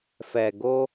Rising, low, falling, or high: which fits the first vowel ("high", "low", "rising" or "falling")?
low